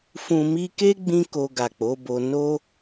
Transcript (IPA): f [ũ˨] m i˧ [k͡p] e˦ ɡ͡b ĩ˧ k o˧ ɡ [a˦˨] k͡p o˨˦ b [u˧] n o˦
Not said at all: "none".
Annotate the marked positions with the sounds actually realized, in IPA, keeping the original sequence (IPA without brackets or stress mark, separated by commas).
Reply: ũ˨, k, a˨, o˧